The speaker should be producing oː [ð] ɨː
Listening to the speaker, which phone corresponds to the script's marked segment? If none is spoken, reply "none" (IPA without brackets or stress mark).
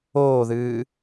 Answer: ð